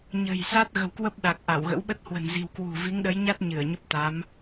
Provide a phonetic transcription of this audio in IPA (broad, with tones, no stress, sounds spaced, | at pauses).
ɲ ə̤˨˩ j s a˦˥ t̚ ɣ ə̤˨˩ w k w ə˦˥ p̚ ɗ a˨˩ k̚ ʔ a˧˩ w ɣ ə̰˧˥ w ɓ ə˦˥ t̚ h w ə̤˨˩ n z i̤˨˩ w k w ṳ˨˩ v i˨˦ ŋ ɗ ə˨˦ j ɲ a˦˥ t̚ ɲ ɨ˧˩ ə̯ ɲ ə˦˥ p̚ t̪ a˨˦ m